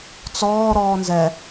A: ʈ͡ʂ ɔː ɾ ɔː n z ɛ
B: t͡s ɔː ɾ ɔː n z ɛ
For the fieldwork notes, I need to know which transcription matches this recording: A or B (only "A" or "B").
B